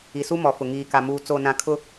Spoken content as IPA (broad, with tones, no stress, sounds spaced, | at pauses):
i˨ s u˦ m ɔ˨ f ʊ˨ ŋ iː˨ k a˨ m uː˨ t͡s o˨ n ã˨ kʰ ʊ˦